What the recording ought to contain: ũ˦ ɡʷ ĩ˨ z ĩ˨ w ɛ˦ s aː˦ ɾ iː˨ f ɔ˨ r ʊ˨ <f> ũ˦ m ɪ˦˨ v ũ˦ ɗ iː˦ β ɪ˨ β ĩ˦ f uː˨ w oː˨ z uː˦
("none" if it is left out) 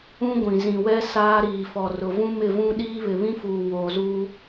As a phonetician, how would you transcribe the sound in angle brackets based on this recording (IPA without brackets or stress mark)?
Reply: v